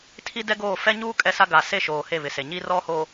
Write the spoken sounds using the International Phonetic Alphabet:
tʰ i˦ d ɛ˦ ɡ oː˦˨ f ɛ˦ ɲ uː˦ kʼ ɛ˦ s a˦ ɡ a˨ s e˦˨ ʃ oː˨ h e˦˨ β ɪ˨ s e˨ ɲ i˦ r ɔ˦ h o˨

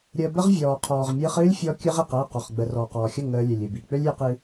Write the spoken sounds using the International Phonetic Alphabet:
ɾʲ əː˧ b ə˦ ʁ vʲ ɔː˨ qʰ ɔː˨ ʁ mʲ ɨː˧ χ ɨː˦ lʲ fʲ ɔ˧ kʲ ɨ˧ ʁ i˨ q əː˦˨ q ɔ˨ χ ɡ͡b ə˨ r ɔː˨ q ɔː˨ xʲ ə˦˨ ŋ əː˧ lʲ ø˨ lʲ ɨ˨ b i˨ k͡p ø˦ lʲ j ɨ˧ q ɨ˧

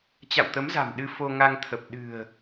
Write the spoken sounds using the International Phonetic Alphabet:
t͡ɕ a̰˧˨ w t̪ ə˨˦ m z a̤˨˩ m ɗ ɨ˧ f o˧ ŋ a˧ ŋ t̪ʰ ə˨˩ p̚ ɗ ɨ̤˨˩ ə̯

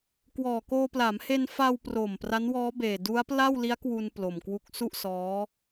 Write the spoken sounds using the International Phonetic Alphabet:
k w ɔː˨˩ k oː˧ p l a˩˦ m h e˧ n f a˧ w p r o˨˩ m p r a˦˥ n w ɔː˦˥ b eː˨˩ d u˦˥ a̯ p l a˥˩ w l i˦˥ a̯ k w u˧ n p l o˨˩ m k w u˦˥ k̚ s u˥˩ ʔ s ɔː˦˥

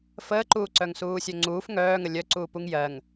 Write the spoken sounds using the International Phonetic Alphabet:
f əː ǃ uː ǀ œ ŋ s uː sʲ œ ŋ͡ǀ uː f ŋ œː ŋ ə lʲ œ ǀ uː p u ŋ j ɜ ŋ

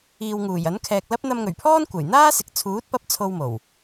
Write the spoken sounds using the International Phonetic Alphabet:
iː˨ w ŋ uː˨˩ j ɐ˨˥ n kʰ ɛː˨ k̚ l ɐ˥ p̚ n̪ ɐ˧ m ŋ ɵ˨˩ ɥ pʰ ɔː˥ n kʷ ɐ˨˩ j n̪ aː˥ s ɪ˨ k̚ t͡sʰ uː˨˥ t̚ p ɐ˧ p̚ t͡sʰ o˧ w m o˨˩ w

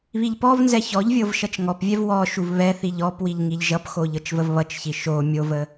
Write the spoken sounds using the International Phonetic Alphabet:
β i ʎ p ɔ v n z ɛ ç ɔ ʎ vʲ ɤ v ʃ ʌ t͡ʃ ŋ ɔ p vʲ ɛ v w ɔ ʃ u v β ɛ θ i ʎ ɔ p w i ʎ ŋ i ʎ ʒ ʌ p x o ʎ ɤ t͡ʃ v ə v β ʌ t͡ʃ ç i ʃ o mʲ o v ə

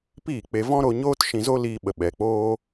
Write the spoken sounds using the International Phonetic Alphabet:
p iː˦˨ k͡p e˧ v ɔ̃˦ ɾ o˧ ɲ oː˦ t ʃ ĩ˧ z o˦ l iː˧ ɓ ə˨ ɓ ɛ˨ k͡p oː˦

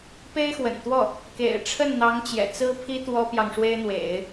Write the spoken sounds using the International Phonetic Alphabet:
p e˥ ɪ̯ x w ə̰˨˩ n t̪ w ɔ˥˩ | k ḛ˨˩ ɪ̯ ʈ͡ʂʰ ə˥˩ n n̪ ɑ˧˥ ŋ t͡ɕ j ɛ̰˨˩ t͡s ɹ̩˥ pʰ i˥ t̪ w ɔ˥ p j ɑ˨ ŋ ʂ w e˥ ɪ̯ n̪ w ḛ˨˩˦ ɪ̯

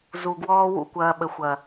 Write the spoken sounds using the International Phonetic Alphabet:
z u˨ ɡ w ɔː˦ w ṵ˦˨ kʷ ɐː˧ ɓ ə˨ xʷ ɐ˨

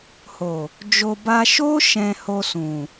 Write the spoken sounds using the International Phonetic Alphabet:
h o˨ | d͡ʒ o˧ b a˧ ʃ o˦ ʃ ɛ̃˧ h o˧ s ũ˨

